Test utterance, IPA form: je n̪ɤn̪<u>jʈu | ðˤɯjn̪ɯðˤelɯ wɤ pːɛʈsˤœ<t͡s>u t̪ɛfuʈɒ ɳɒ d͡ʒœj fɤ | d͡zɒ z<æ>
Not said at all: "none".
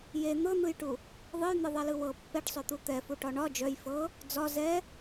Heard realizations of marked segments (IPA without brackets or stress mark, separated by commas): ɯ, t̪, ɛ